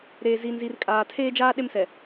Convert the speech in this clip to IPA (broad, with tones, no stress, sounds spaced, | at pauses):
ɾ eː˨ z i˨ n z i˨ r kʼ aː˨ tʰ eː˦ d͡ʒ aː˦ ɗ e˦ m s ɛ˨